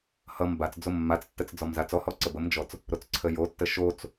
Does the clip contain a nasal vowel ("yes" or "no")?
no